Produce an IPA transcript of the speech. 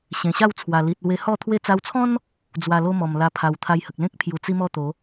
ɕẽ˨˩ɕa˥˧wt͡sʰwa˨˩ li˨t̚lwe˧hɔ˥˧ t̪ʰwe˧t͡sa˧wt͡sʰɔ̃˦n | d͡zwa˨˩lo˧ mɔ˨˩m la˧pʰa˨˩wt̪ʰa˧jhə˨k̚ lẽ˦k̚ pʰju˨˩t͡si˦mɔ˥˧t̪o˨˦

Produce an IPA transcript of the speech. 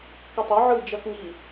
ketˤɜ ʕɯd͡ʒɐkŋi

